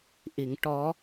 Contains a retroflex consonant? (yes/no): yes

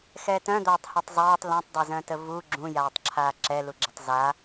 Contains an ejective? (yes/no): no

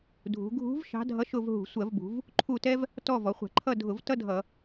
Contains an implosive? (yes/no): no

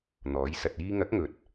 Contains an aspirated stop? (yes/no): no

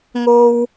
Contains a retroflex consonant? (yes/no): no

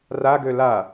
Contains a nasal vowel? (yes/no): no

